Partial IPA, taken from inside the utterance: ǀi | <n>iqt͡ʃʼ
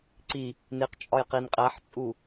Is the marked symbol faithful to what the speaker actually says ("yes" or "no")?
yes